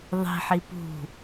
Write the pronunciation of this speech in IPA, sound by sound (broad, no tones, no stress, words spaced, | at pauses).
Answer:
ðˤi̤ħi pṳ